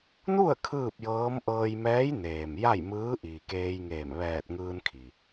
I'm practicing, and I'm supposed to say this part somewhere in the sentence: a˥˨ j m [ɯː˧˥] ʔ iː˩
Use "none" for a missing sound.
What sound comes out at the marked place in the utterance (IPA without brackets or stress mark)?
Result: ɯː˧˥